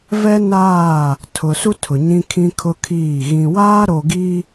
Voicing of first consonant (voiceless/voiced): voiced